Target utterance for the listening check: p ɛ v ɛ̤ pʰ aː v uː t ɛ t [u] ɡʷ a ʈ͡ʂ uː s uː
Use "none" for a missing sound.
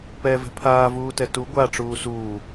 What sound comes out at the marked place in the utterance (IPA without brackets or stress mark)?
u